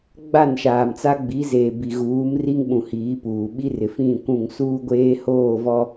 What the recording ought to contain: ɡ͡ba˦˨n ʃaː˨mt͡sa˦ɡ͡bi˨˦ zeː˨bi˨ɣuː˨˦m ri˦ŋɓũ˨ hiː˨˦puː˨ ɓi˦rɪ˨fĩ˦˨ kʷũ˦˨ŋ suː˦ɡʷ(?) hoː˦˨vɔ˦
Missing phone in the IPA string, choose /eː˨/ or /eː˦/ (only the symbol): eː˦